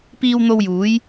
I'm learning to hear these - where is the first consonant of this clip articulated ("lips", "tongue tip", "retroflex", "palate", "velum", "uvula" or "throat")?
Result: lips